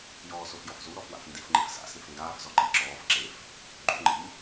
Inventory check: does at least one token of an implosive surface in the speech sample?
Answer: no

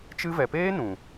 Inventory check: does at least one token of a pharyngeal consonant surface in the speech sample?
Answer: no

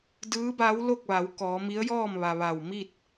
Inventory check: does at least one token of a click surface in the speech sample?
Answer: no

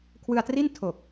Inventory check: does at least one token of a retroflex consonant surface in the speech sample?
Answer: no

